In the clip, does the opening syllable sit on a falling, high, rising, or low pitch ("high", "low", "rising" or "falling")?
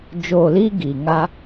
low